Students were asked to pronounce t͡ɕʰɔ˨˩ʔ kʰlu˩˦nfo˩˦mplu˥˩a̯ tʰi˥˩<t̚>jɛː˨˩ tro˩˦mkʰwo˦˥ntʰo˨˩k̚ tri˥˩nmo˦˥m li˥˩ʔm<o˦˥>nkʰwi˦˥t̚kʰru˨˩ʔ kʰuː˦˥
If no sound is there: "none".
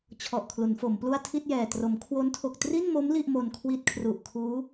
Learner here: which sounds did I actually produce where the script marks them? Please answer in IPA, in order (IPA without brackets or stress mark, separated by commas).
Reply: t̚, o˧